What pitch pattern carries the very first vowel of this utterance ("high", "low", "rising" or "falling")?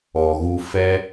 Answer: low